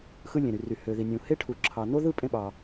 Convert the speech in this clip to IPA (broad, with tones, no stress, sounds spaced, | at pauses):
x ɯ˥ lʲ ẽ˩ ɾ y˩ r y˩ h ø˩ ð i˩ nʲ ũ˩ h e˥ ʈʰ u˩ ǁʰ ɑ˩ n o˥ ð ɯ˥ pʼ ẽ˥ ɓ ɑ˩